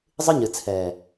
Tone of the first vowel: high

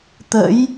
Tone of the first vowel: rising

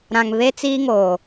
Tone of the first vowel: low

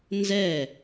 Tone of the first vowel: falling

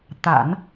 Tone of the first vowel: low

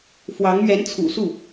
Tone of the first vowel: rising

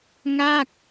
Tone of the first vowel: falling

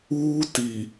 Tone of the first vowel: high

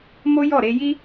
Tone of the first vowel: high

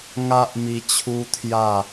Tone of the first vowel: high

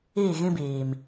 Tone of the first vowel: falling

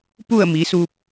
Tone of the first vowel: falling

